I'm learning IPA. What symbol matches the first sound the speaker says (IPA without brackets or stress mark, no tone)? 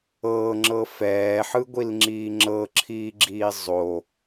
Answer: ɤː